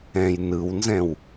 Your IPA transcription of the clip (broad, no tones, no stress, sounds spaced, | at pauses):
ɛ̃ j n ɯ w n z ɛ̃ w